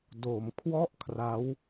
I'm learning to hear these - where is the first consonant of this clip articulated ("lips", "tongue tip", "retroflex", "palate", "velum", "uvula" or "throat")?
tongue tip